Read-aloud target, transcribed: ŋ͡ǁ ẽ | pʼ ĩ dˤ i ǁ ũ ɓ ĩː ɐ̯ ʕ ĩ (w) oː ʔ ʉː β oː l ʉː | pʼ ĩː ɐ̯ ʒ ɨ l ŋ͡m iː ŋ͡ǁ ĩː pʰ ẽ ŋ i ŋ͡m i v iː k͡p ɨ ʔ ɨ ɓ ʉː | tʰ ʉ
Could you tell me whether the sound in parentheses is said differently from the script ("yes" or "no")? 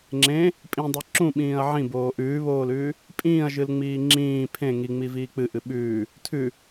yes